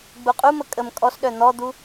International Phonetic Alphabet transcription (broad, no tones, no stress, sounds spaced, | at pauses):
ɡ͡b u qʼ u m ə kʼ ə m kʼ ɔ s ɗ œ n̪ ɔ d̪ u